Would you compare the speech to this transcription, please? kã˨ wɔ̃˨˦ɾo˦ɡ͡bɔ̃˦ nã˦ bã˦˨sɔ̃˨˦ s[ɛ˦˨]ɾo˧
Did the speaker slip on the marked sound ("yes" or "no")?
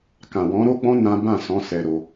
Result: yes